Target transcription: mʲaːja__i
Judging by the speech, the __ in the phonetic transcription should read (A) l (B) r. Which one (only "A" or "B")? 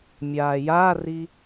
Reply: B